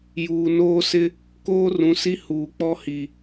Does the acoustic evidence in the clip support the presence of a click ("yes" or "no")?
no